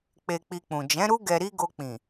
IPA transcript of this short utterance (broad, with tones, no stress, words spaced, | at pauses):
k͡pe˧k͡pi˧k͡pũ˨ d͡ʒɛ̃˨˦ɾu˦ ɡɛ˧ɾi˦ ɡo˧k͡pĩ˨